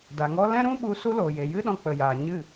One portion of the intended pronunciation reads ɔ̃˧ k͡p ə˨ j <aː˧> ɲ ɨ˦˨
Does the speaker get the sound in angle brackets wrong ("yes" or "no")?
yes